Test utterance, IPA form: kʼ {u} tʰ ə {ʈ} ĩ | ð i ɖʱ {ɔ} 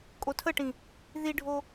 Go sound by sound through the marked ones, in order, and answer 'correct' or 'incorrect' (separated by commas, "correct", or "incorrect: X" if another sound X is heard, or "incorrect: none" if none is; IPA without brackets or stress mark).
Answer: incorrect: o, correct, incorrect: o